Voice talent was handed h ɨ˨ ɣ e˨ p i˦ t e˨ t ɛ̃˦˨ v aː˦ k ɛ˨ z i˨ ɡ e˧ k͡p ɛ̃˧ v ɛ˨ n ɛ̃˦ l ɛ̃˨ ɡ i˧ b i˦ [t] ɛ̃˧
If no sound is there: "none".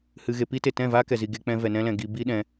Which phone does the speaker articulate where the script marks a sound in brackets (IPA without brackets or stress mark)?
ɗ